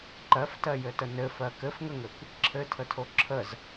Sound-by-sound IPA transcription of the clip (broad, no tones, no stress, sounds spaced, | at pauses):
ǃ ɜ f t ɜ j ɘ t ə n ɘ f ɜ k ɘ f ŋ ə ŋ ɘ kʷ | ǁʰ ɘ tʰ ə tʰ o ǁʰ ə z